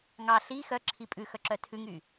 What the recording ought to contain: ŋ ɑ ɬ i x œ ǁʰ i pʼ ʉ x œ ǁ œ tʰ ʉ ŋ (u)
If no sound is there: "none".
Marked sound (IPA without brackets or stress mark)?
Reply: y